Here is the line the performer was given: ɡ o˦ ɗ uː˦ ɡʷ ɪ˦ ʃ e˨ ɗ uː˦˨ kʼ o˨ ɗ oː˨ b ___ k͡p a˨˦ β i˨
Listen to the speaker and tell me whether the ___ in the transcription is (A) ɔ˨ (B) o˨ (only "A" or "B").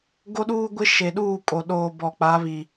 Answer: A